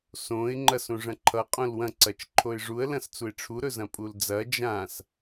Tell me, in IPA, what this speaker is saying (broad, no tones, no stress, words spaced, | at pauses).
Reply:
sõɪ̯ ŋ͡ǃɐsõʐɐ̃ǃʰʌ qʼõlwɐ̃ ǀɐt͡ʃǃʰoɪ̯ʐuə̯ lɐ̃st͡suɪ̯ʈ͡ʂʰu ɾɵzɐ̃pʼuld͡zɐ d͡ʒãs